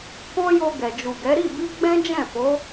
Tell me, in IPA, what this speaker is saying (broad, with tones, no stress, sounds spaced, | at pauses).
k ɔ̃˦ j o˧ ɡ ɛ˨ d͡ʒ u˨ ɡ ɛ˨˦ ɾ i˦˨ b i˧ ɡ͡b ɛ̃˦ d͡ʒ ɛ̃˦˨ f o˨˦